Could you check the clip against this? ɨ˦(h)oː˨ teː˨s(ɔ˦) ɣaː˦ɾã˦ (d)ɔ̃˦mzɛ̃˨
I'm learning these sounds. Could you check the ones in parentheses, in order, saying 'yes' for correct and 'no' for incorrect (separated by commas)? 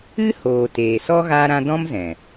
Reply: yes, yes, yes